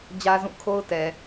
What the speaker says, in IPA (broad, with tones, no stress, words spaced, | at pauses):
d͡ʑä˦zũ˦˨kʰo˦ʊ̯ tɛ˨